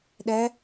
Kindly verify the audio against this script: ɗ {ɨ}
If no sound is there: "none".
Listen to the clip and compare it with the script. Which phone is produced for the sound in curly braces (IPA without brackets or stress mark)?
ɛ